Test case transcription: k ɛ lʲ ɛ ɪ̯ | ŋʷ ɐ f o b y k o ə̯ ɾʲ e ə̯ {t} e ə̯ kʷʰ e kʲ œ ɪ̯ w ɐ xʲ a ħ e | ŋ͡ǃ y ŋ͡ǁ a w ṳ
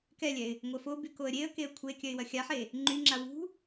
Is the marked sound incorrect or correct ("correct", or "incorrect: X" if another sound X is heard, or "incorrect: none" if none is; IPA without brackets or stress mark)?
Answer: incorrect: k